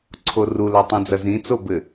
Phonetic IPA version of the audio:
ǀʰ o r u l a tˤ ũ d͡z ɐ z ĩ t͡s o b ɘ

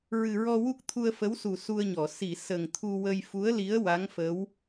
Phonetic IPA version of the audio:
ɹ ɨ˨˩ ɹ ɔ˧ w u˦˥ k̚ t̪ʰ u˧ ə̯ f ə˧˥ w s u˨˩ s u˧ ə̯ ɲ ɔ˨˩˨ s i˨˩˨ s ə˨˩ ŋ t̪ʰ u˧ w ə˧ j f u˧˥ ə̯ l i˧˥ ə̯ w a˧˥ ŋ f ə˧˥ w

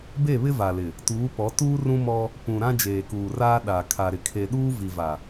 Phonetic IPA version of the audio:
b e˦˨ β ɪ˦ v a˨ l ɪ˨ | t uː˨˦ p ɔ˨˦ t uː˦ r ũ˦ m ɔ˦ | p ũ˨ ɾ ã˦ d͡ʒ eː˨ k uː˨ r aː˦ ɗ a˨ kʰ a˨ ɾ ɪ˨ kʰ e˨ ɗ uː˦ v i˨ v a˨

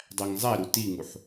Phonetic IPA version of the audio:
dˤ æ ŋ zˤ æ ɾ u t i ŋ u ħ

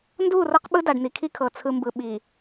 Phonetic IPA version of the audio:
n d uː˦˨ r ɤ˦ q ɓ ɯ˦ d a˨ ɖ n̪ i˨ kʰ i˦ kʰ ɤ˨ t͡sʰ ɯ˨ m b ɯ˨ ɓ i˨

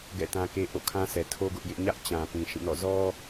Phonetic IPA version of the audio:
ɡ ɛ̰˦˨ t ã˦ k e˦ ʔ o̰˦˨ kʰ ã˦ s ɛ˨ tʰ o˦ ɡ ʊ˦ ʔ j ɪ˦ ʔ ɲ ä˦ ʔ t͡ɕ ã˨ p ĩ˨ ʃ ĩ˦˨ n ɔ̰˦˨ z ɔ˦

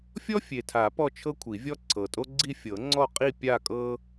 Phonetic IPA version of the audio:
fʲ ɔ˥ fʲ e˨˩ tʰ a˨˩˦ p ɔ˥˧ t͡ʃʰ ɤ˥ kʷʰ i˨˩˦ vʲ ɔ˥ ǀʰ ɤ˨˩ tʼ o˥ ɡ͡ǀ i˥˧ fʲ ɤ˨˩˦ ŋ͡ǀ ɔ˥˧ qʼ i˥˧ pʲ a˥˧ kʼ ɤ˥

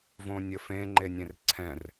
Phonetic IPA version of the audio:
v õ nʲ ɘ f ẽ ŋ͡ǃ e nʲ ẽ r ǀʰ ɛ̃ r

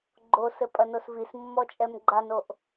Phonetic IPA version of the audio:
ɡ͡ǃ o s ɘ pʼ ɐ n o s v i s mː ɔ t͡ʃʼ ɛ m ɡ͡ǃ a n o ʔ

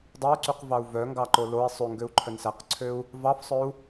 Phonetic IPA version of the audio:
dˤ e y̯ ǀ y q v ɑ u̯ v œ ŋ ɡ ɑ ǃ o l o i̯ sˤ ʉ ŋ ɡ ø u̯ ǃʰ œ n s æ q ǀʰ ø u̯ | v ɑ f sˤ œ u̯

